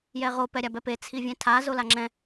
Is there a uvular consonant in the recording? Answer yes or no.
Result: yes